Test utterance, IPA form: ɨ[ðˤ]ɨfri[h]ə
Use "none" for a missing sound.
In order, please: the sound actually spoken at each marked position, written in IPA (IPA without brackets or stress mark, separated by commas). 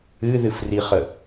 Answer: ð, χ